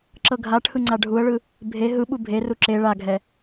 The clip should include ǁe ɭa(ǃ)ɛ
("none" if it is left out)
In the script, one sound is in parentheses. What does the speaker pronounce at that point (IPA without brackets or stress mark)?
ɡʱ